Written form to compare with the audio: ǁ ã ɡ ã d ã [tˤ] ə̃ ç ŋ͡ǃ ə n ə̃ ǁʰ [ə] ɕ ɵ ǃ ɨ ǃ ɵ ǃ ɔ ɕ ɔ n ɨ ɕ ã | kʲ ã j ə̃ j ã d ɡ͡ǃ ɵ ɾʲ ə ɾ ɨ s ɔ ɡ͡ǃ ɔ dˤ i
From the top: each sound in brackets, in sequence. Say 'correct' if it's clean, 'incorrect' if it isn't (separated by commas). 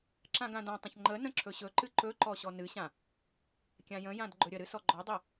correct, incorrect